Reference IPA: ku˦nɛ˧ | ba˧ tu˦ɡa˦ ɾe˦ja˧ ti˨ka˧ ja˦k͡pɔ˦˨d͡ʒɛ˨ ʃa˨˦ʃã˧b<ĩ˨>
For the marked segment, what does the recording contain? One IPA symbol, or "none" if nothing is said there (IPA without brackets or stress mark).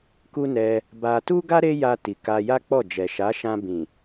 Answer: ĩ˨